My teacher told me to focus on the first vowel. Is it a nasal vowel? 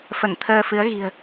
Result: no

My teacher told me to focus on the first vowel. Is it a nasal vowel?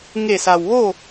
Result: no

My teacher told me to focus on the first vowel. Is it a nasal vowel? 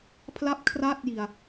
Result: no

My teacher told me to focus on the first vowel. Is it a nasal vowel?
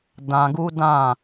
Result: yes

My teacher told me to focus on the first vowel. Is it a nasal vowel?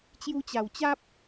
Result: no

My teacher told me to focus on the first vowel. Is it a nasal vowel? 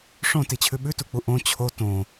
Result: yes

